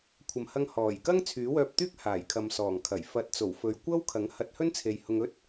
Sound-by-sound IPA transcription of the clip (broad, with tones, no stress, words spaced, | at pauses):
kʷʰɐ˨mhɐ˧ŋ hɔː˨˩jkɐ˥ŋ t͡sʰyː˨˥wœː˧p̚t̪yː˥k̚ haː˨˩jkʰɐ˨m sɔː˨˩ŋkʰɐ˨˩j fɐ˨˥t̚t͡so˨˩wfɵ˨ɥ kʷɐ˥wkʰɐ˨˥ŋ hɐ˧t̚hɵ˥nt͡sʰe˨j hʊ˧ŋɵ˥t̚